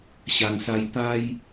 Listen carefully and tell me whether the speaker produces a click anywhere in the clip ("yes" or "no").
no